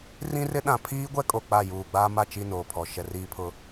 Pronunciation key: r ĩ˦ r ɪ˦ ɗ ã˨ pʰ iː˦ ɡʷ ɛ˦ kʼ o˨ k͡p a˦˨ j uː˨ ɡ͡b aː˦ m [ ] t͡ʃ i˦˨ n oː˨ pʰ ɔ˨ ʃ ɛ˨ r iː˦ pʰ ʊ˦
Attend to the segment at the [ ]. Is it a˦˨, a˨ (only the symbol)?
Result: a˦˨